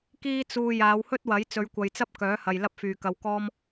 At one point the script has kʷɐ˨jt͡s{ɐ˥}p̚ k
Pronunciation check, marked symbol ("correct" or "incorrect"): correct